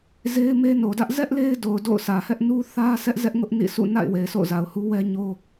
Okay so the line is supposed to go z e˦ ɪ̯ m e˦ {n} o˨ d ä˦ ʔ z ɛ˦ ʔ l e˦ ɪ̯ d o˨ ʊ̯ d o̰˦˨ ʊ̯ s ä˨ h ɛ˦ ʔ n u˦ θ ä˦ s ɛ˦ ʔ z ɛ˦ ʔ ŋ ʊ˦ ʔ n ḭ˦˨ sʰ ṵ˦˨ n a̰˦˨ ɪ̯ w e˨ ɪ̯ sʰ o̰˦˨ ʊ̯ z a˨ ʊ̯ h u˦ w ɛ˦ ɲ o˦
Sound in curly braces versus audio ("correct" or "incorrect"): correct